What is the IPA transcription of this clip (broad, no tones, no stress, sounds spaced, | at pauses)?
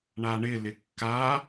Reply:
ɳ a ɳ ɪ l ɪ kː a